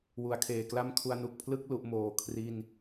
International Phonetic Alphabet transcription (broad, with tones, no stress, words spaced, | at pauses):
wu˩˦a̯kʰeː˨˩kla˥˩mkʰu˧a̯ nu˨˩k̚pʰlɯ˥˩k̚ lu˦˥ʔmoː˦˥ kʰri˥˩n